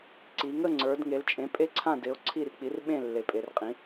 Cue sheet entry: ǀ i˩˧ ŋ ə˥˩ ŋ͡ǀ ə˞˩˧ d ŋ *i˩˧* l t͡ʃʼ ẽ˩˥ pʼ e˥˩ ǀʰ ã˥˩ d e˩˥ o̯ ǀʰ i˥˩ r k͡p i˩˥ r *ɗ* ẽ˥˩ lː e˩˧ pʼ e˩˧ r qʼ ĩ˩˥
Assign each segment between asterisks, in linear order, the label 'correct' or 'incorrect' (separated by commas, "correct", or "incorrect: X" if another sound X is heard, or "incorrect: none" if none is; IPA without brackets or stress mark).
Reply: incorrect: e˩˧, incorrect: ɓ